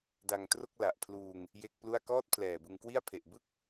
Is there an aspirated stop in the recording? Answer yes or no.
yes